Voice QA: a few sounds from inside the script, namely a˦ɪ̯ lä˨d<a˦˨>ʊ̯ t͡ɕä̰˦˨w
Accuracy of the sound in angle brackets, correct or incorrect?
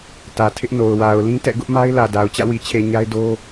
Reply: incorrect